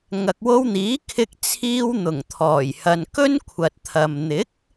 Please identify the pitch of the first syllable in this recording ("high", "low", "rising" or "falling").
low